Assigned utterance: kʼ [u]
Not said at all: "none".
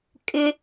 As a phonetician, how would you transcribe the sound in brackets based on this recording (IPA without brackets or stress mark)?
ʏ